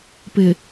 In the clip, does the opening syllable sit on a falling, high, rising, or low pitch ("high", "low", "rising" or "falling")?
low